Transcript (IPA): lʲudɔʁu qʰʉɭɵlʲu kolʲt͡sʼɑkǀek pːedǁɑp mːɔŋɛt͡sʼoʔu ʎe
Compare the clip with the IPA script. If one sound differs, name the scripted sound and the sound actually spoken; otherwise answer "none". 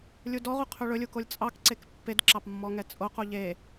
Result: ʔ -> q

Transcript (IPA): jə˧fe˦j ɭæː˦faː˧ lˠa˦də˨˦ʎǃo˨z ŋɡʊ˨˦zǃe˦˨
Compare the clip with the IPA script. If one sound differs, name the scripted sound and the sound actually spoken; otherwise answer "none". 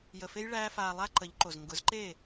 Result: d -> ǃ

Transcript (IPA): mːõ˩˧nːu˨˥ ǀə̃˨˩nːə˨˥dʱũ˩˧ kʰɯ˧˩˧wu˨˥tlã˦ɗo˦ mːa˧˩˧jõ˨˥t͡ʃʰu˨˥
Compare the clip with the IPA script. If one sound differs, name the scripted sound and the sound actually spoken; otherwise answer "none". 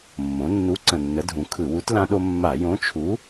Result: none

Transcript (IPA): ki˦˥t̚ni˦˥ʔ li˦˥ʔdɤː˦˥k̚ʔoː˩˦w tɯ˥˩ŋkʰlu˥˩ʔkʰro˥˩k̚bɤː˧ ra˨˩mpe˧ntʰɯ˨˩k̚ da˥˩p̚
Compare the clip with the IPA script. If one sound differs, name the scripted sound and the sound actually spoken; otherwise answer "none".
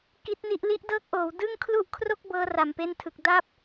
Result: t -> d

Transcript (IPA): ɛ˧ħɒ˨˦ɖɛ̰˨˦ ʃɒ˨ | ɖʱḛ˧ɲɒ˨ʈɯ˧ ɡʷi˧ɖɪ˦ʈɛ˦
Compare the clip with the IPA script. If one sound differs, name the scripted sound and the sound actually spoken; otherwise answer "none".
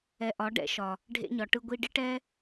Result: ħ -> ʔ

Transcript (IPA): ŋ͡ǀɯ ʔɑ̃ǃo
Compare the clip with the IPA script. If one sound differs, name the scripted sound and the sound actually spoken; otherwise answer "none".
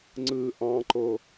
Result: none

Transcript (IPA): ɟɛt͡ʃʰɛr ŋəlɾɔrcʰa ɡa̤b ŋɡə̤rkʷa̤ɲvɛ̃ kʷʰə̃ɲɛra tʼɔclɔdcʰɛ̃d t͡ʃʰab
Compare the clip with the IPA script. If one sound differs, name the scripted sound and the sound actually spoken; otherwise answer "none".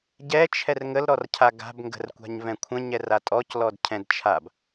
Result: none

